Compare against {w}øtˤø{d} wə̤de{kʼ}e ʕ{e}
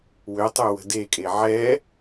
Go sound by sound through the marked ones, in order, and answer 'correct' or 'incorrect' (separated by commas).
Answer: correct, incorrect, correct, incorrect